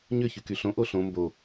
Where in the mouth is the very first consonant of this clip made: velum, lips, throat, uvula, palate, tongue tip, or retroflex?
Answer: palate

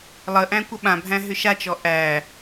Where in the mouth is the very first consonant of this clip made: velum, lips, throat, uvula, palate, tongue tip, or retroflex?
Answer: tongue tip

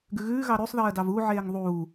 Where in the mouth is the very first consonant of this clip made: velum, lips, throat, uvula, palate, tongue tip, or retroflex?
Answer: velum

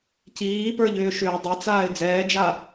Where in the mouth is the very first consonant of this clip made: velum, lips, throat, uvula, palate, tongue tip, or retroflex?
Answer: palate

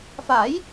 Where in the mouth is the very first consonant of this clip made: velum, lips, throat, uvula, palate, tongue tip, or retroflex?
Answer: lips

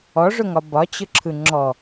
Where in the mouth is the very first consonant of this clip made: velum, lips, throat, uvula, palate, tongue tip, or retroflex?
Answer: retroflex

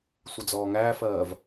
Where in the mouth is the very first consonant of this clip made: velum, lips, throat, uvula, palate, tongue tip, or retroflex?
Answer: tongue tip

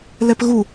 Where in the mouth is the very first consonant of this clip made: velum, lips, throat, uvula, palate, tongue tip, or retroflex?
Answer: tongue tip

